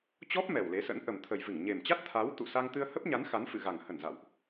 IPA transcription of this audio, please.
t͡ɕ ɔ˦˥ p̚ m ɛ˨˩ w l e˨˦ s ə̰˧˥ n ʔ ə˨˩ m t̪ʰ ə˨˩ j v ɨ˧˩ ŋ ɲ e˨˩ m t͡ɕ a˦˥ t̚ t̪ʰ a˨˦ w t̪ ṵ˧˨ s a˧ ŋ t̪ ɨ˧ ə̯ h ə˦˥ p̚ ɲ a˨˦ n x a˨˦ n f ɨ̰˧˨ ɣ a˨˩ ŋ h ə˧˩ n z a̰˧˨ w ʔ

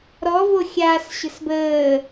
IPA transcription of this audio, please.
ɾ ɔ v o xʲ aː s ɕ ə̤ s b əː

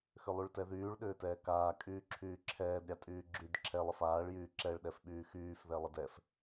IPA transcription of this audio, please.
x ʏ lˠ y ɭ t ɛ ð yː ɭ ɗ ʏː t ɛː k aː kʼ yː ǁʰ yː ǁʰ ɛː d ɾʲ a tʼ yː ɡ͡ǁ y d ǁʰ ɛ lˠ ə f aː ɭ j yː ǁ ɛ ɭ ɗ ɛ f ɓ yː x yː f ð ɛ lˠ ə d ɛ f

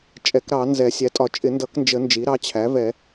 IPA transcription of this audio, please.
t͡ʃʼ ɛ˨˩˦ k ɾ ɑ˨˩˦ n z ɛ˨˩˦ sʲ æ˩˥ tʼ ɒ˨˩˦ t͡ʃʼ ɪ˨˩˦ n d ʌ˨˩˦ k n d͡ʒ ə˨˩˦ n d͡ʒ i˩˥ ɾ ɑ˩˥ t͡ɕʰ æ˩˥ v ɛ˨˩˦

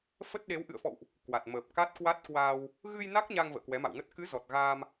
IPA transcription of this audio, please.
f ə˦˥ t̚ ɗ e˨˦ w ʔ ɨ̰˧˨ ə̯ f ɔ̰˧˨ w ʔ | k w a˨˩ t̚ m əː˨˩ p̚ k a˦˥ t̚ k w a˦˥ t̚ k w aː˧ w | ɣ ɨ˧ j n a˦˥ k̚ ɲ a˧ ŋ v ə̰ː˧˨ k w ɛ˨˦ m a̰˧˨ w ŋ ə˦˥ t̚ k ɨ˨˦ z ɔ˨˩ t̚ ɣ aː˧ m

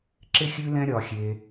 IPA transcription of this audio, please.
ǁ ɪ˦ xʲ ʉ˦ l ɛ̃˦ ɾʲ ɒ˧ xʲ e˧

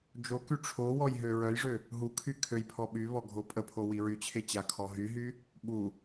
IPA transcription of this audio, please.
d͡ʒ o k y ʈ͡ʂʰ o w ɔ j ɦ ø ɹ œ j ʐ ø | ɦ u kʰ y kʰ ø j pʰ ɔ ɓ y β ɔ ɡʱ o pʼ ə pʰ o w i ɹ y t͡ɕʰ e t͡ɕ a kʰ ɔ ɦ y ɦ y | ɓ u

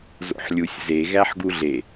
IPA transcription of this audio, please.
z o̰ ħ lʲ u sʲ z e ɣ æ ħ ɡ u ɮ e

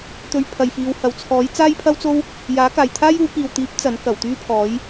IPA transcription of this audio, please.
t̪ ɵ˧ ɥ pʰ ɐ˨ j f iː˨˧ w h ɐ˨˧ w t͡sʰ ɔː˨˥ j t͡s aː˥ j pʰ ɐ˥ w t͡s o˥ w | j aː˨˥ k aː˨ j t̪ʰ aː˥ j uː˨˥ k iː˨ w t̪ iː˨˥ p̚ t͡s ɐ˨˥ n k ɐ˨˩ w t̪ yː˥ pʰ ɔː˨˥ j

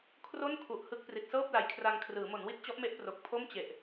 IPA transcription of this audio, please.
kʰ r o˥˩ n kʰ u˨˩ ʔ h ɯ˦˥ k̚ p r i˨˩ t̚ s ɤː˥˩ p̚ l a˨˩ j kʰ r a˧ ŋ kʰ r ɯː˩˦ m o˩˦ n w i˦˥ t̚ t͡ɕ ɔ˦˥ ʔ m e˦˥ ʔ p r o˨˩ k̚ pʰ o˥˩ m t͡ɕ e˨˩ ʔ

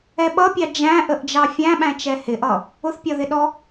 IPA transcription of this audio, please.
ɛ ɓ ʌ pʲ ɑ d͡ʒ æ̃ ʔ ə ʔ d͡ʒ ɑ fʲ æ̃ ɓ æ̃ t͡ʃ ɛ h ɪ ʔ ʌ | ʊ θ pʲ ɒ ð ɪ ɗ ɔ

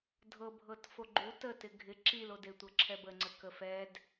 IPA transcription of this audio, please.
dʱ ɤ bʱ ɤ t f o ɡ͡ǃ u t ə t ɪ ɡʱ ɪ ǁ i l o d e tʷ ɤ ǁʰ ɛ b ə ŋ͡ǀ ə k ə f ɛ d

